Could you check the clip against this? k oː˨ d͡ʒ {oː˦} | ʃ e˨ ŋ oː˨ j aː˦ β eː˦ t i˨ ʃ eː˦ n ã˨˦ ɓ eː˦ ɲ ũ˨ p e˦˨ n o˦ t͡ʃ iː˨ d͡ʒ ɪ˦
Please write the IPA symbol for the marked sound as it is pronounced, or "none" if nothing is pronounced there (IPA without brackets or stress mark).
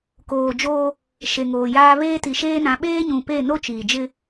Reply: oː˦